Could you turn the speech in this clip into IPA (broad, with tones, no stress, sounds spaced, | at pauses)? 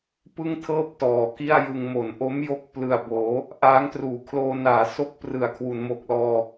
p ɯ˥˩ ŋ tʰ ɤː˥˩ p̚ t ɔː˨˩ k i˥˩ a̯ j ɯ˧ ŋ m o˩˦ n ʔ o˦˥ m j o˦˥ k̚ p l ɯ˨˩ a̯ b oː˩˦ | ʔ aː˦˥ ŋ t r uː˨˩ kʰ l oː˧ n aː˩˦ s o˦˥ k̚ p r ɯ˨˩ a̯ kʰ w u˩˦ n m o˨˩ k̚ l ɔː˧